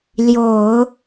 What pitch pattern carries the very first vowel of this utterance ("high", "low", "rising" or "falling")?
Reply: low